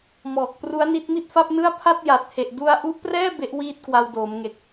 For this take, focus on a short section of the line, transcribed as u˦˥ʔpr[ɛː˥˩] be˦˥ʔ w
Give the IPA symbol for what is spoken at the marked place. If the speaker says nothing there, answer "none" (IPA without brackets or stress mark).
ɛː˥˩